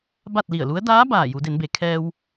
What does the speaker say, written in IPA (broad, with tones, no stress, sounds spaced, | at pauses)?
b a˥˨ t̚ l i˧˩ ə̯ l u˧˥ ə̯ d aː˧˥ b aː˧˩ j u˩˧ d e˩˧ n b e˩˧ kʰ ɛː˧ w